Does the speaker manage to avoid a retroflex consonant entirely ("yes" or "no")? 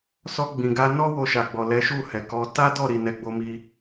yes